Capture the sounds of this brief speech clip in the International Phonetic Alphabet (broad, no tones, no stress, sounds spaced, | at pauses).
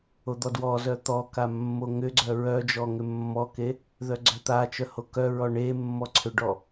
o d̪ ɔ d w ɔ z œ t̪ ɔ k a mː o ŋ ʏ ɡ͡ǀ œ ɹ œ d͡ʒ ɔ ŋ ʏ mː ɔ k e | ð œ ɡ͡ǀ œ t̪ a t͡ʃ œ h o k œ ɹ ɔ ɳ e mː ɔ ǀʰ ʏ ɖ ɔ